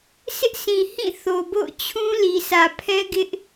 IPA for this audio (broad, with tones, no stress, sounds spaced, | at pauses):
sʰ ɪ˦ ʔ s ĩ˨ h ĩ˦˨ θ o˨ b o̰˦˨ ʊ̯ t͡ɕʰ ũ˦ l i˨ sʰ ä˨ pʰ ɛ˦ ɡ ɪ˦ ʔ